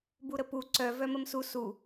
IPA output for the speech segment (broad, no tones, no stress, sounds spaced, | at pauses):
b u ɾ ə p u ǀ œ v œ m ə m s u s u